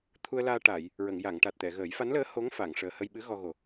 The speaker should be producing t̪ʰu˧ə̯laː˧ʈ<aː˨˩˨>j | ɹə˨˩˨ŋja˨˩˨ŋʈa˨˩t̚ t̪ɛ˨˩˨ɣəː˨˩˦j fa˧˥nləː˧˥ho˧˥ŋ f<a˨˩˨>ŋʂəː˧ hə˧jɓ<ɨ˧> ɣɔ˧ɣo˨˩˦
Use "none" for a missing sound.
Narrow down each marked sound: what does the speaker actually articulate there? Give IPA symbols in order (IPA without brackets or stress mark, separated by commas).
aː˨˩˨, a˨˩˨, ɨ˧˥